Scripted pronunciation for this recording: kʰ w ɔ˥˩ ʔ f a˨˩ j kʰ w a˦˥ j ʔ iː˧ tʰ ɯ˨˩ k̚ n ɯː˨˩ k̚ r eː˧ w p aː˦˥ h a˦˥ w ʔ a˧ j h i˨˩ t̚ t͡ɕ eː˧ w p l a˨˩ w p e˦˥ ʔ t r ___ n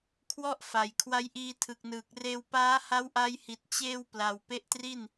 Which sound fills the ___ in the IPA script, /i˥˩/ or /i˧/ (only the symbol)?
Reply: i˥˩